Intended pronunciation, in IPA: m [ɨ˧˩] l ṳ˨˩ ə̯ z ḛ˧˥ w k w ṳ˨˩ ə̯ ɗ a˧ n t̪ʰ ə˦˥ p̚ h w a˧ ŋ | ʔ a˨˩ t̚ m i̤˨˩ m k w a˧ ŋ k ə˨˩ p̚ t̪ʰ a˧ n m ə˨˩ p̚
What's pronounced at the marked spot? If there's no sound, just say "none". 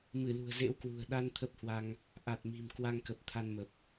ɨ˧˩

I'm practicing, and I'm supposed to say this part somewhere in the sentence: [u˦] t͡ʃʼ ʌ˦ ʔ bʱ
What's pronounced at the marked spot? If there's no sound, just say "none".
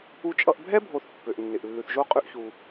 u˦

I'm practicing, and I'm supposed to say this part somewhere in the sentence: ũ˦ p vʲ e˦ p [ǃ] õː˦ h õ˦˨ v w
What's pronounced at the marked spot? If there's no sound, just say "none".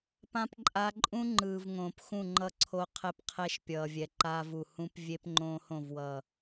ŋ͡ǃ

